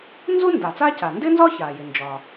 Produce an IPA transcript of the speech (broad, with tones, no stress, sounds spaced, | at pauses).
n z u˥ n d a˩ t͡s aː˥ c a˩ n d ɪː˥ n z ɒ˥ ç aː˩ j ɪ˩ n d͡ʒ ɒ˩